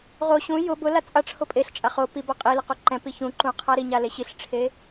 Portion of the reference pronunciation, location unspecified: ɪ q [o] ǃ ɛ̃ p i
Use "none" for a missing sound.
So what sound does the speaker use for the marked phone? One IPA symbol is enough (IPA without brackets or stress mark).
o